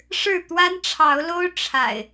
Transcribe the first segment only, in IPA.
ʂ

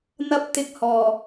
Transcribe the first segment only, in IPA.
n̪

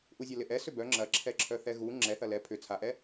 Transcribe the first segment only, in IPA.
ʔ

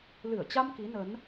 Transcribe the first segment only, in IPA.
l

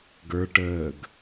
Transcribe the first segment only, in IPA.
ɡ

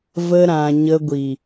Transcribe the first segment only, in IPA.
v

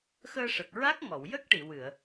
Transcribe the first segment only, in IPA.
x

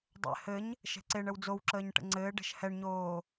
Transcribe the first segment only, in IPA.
dˤ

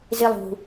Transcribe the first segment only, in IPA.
z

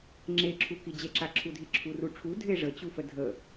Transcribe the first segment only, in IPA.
ŋ͡ǁ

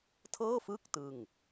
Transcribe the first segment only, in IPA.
tʰ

